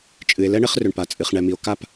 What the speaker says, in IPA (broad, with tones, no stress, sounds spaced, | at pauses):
t͡ʃʼ ɨ˧ e̯ l ɛ˥ ɳ ɘ˥ χ r ʏ˧ ɳ p a˧ t͡sʼ ɨ˧ χ ɳ ɛ˧ m i˧ o̯ k a˥˨ p